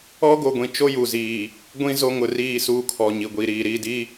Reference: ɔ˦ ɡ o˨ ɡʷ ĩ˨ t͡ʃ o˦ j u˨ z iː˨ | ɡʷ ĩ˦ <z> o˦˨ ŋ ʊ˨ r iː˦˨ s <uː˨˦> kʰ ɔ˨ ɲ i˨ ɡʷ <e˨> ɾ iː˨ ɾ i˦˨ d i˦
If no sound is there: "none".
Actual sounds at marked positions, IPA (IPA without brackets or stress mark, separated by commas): z, uː˦, i˨